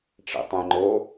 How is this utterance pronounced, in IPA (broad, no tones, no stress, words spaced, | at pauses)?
ʈ͡ʂḭtˤẽŋ͡ǃo